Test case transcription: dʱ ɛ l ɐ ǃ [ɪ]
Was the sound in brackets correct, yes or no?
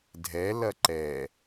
no